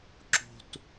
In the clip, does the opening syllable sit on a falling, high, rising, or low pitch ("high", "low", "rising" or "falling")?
high